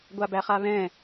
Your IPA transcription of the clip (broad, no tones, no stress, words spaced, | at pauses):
ɡʷabæχaβɛ̃